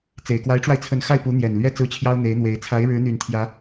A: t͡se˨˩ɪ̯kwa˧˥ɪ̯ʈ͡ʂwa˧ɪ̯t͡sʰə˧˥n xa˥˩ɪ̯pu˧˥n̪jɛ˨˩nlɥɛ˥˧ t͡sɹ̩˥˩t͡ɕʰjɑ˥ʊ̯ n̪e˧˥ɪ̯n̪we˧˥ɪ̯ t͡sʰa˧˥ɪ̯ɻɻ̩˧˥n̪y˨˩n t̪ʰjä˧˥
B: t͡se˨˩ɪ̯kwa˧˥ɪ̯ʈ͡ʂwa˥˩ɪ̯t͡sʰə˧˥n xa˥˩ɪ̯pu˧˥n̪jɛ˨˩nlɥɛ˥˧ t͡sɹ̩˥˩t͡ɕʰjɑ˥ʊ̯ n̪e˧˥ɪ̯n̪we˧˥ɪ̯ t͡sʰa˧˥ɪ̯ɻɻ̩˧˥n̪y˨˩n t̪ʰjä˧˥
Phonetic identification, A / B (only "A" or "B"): A